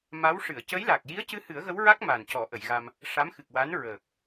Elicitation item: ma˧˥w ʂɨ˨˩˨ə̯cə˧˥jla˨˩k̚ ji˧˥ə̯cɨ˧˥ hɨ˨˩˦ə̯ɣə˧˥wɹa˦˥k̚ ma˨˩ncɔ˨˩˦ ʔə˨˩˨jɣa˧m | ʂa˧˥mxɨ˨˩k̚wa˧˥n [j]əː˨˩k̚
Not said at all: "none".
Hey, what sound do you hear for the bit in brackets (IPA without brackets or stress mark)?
ɹ